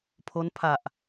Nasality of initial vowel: oral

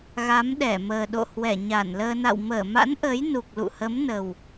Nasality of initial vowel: oral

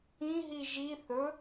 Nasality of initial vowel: nasal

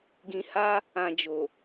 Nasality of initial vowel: nasal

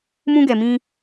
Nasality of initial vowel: nasal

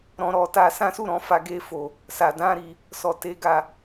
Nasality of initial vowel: nasal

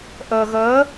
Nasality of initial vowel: oral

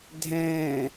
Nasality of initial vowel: nasal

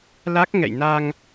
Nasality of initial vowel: oral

